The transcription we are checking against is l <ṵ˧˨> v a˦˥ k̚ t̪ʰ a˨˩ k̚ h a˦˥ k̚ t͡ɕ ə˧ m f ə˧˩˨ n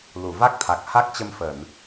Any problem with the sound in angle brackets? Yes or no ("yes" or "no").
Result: yes